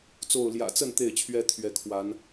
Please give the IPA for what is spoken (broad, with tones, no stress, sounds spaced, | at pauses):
t͡s o˥˨ ʊ̯ l j ä̰˨˩ t͡s ə˥˨ n t̪ e˥˨ ɪ̯ t͡ɕʰ ɥ ɛ˦ t̪ʰ ɥ ɛ˨˦ kʰ w a˨˦ n